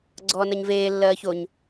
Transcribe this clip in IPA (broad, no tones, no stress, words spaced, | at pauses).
ɡ͡ǀɔːnɜɲveː lːɜːçoɲ